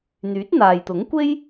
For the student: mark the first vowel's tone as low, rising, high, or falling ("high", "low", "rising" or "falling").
rising